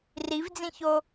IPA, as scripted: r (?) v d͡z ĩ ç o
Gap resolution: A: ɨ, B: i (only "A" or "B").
B